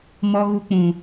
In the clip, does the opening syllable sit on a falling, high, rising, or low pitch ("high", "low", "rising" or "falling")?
high